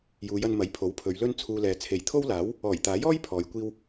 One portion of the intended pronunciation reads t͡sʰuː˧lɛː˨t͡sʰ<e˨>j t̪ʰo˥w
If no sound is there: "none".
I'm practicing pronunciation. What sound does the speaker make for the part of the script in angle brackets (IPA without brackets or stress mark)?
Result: e˨